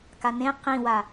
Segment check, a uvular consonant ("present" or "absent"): present